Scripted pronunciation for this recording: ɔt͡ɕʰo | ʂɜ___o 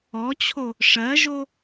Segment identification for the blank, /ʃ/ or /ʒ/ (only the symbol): ʒ